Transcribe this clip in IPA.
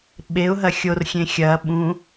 ɓ e ʊ̯ ɦ ɐ xʲ o r xʲ ẽ xʲ ɐː ɓ ũ

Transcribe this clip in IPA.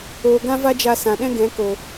oː˨ ɡ ã˦ v a˦ d͡ʒ a˧ s ã˨ ɗ ɛ̃˦ ɡ ɛ̃˨˦ k o˨

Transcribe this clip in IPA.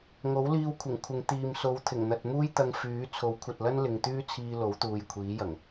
ŋ o˨˥ w l iː˧ w kʷʰ ɪ˨˩ ŋ kʷʰ ɪ˨ ŋ t̪ iː˨ m s o˨˧ w t̪ʰ ɪ˨˩ ŋ n̪ ɐ˨ t̚ m uː˥ j t̪ ɐ˧ ŋ f yː˨˥ t͡sʰ o˨˥ w kʷʰ ɐ˨ t̚ l ɐ˥ n l ɪ˨ ŋ t̪ yː˥ t͡sʰ iː˧ l o˨˥ w t̪ uː˨ j kʷʰ iː˨˥ j ɐ˨˩ ŋ

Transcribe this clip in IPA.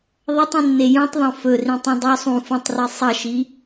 ðˤ ɐ tˤ ĩ nː e j ũ tˤ ðˤ õ f ɵ r ĩ tˤ ũ dˤ o sˤ ũ f ũ tˤ r i sˤ ɐ ʃ i

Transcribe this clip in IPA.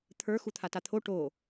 t̪ʰ ə˞ x u t̪ʰ a t a t̪ʰ o ʈ o

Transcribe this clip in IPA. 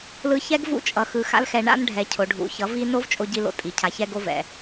l ɯ˧ ç ɛ˦ ɡ v ṵ˦ t͡ʃʼ ʌ˨ x ɯ˨ x a̰˧ l x ɛ˨ ɳ a̰˦ n ɖʱ ɛ˨ cʰ o˨ ɖʱ ṵ˨ ç ʌ˨˦ v i˦ n o˦ v t͡ʃʼ o˧ ɟ i˧ l o̰˧ tʼ i˨ cʰ a˧ ç ɛ˦ ɡ o˧ v ɛ̰˨

